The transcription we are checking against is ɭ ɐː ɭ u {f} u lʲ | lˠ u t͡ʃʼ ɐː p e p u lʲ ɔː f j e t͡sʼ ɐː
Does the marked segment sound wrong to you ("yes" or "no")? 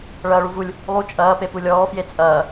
yes